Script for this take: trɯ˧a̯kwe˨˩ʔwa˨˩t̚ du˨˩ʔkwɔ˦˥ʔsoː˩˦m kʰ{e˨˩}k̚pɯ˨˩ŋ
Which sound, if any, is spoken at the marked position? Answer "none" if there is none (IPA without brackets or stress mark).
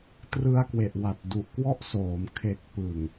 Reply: e˨˩